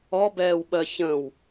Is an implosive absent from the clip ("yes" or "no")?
no